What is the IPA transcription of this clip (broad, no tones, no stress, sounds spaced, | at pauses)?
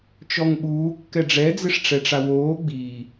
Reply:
t͡ʃ ɔ ŋ ɓ uː kː ɛ ɖ͡ʐ ɛ d͡z ɪ ʂ ʈ͡ʂ ɛ ʈ͡ʂ a w oː ɡ͡b i